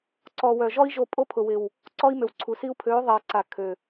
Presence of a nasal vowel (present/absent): absent